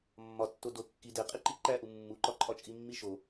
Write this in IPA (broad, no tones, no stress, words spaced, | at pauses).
mːɒtːo do kːi deqʼiǃi ǃæʔu mːuǃɒǃʼɒt͡ʃʼi mːiʃo